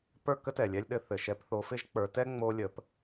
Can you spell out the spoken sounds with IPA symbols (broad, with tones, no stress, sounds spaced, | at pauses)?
p ə˞˥˨ k ə˥ t ɛ˩ lʲ ɛ˧ lʲ ɗ ɘ˨˥ θ ɘ˩ ʃ ɛ˨˥ p θ o˨˥ f ɪ˥ ʒ k͡p ə˞˩˧ t ɛ˥ ŋ͡m o˧ lʲ ə˩˧ p